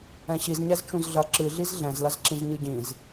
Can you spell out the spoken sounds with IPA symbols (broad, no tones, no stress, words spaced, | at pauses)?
ɛ̃ɕizɲɛz t͡ʃũzɮɐ ǁɨɮiz ɮɛ̃zlɐzǁĩz ɲɨɟĩz